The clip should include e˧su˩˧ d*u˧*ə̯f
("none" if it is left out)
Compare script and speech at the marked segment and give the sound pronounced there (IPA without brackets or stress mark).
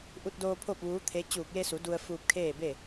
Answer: u˧